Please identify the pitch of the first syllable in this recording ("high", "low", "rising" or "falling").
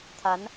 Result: rising